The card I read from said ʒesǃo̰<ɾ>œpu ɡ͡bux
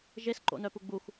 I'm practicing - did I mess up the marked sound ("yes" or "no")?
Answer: yes